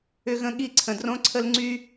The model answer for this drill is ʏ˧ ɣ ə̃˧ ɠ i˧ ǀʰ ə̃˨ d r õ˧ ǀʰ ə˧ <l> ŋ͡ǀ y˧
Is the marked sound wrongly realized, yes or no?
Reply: no